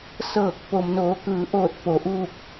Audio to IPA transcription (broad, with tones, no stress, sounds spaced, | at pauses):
s ɤː˧˩ k̚ p o˩ m n oː˩˧ k ɯː˩˧ ʔ oː˧˩ t̚ p o˩˧ ʔ uː˥˨ k̚